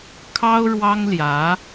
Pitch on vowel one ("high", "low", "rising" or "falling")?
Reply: high